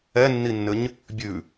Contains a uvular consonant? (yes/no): no